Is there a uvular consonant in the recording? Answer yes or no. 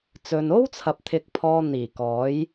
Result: no